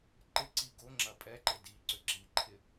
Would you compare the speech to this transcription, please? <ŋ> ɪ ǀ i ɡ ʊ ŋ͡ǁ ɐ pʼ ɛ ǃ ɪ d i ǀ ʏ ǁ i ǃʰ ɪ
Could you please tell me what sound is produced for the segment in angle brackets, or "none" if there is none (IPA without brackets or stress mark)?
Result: ǃ